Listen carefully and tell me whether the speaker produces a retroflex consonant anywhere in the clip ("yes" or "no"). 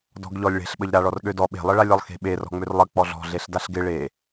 yes